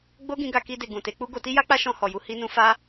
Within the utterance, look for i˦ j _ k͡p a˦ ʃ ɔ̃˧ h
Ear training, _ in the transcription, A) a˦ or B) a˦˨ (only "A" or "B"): A